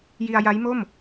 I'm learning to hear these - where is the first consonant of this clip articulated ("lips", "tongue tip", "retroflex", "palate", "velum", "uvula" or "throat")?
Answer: palate